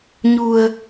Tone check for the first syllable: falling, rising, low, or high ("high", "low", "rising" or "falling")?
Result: low